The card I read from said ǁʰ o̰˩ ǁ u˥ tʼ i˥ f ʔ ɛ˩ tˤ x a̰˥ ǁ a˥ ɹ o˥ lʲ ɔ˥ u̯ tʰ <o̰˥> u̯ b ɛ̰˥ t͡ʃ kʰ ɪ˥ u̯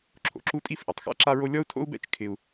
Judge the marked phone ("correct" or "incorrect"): correct